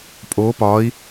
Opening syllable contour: rising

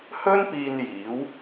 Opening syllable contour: high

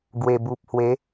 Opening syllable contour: low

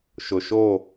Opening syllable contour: low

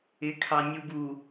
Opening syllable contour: rising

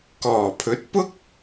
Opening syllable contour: low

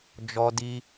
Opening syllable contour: high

